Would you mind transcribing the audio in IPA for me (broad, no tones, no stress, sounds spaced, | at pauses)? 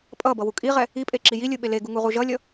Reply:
pʼ ʌ b ʌ w u kʼ i ʁ ɛ | i pʼ e ǁ i j i lʲ ɯ ɓ e l e ɡ u ŋ u ʁ u ʒ ʌ lʲ ʌ